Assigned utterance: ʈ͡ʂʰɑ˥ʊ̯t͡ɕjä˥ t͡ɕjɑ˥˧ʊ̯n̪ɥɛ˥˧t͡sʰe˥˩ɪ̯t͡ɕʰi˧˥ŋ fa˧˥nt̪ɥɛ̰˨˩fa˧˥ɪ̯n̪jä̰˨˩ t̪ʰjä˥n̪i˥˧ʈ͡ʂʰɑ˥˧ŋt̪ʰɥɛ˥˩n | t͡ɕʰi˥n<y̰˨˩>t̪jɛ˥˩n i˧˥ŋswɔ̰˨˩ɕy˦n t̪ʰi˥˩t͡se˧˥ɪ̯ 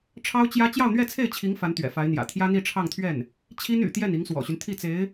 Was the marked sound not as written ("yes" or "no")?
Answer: no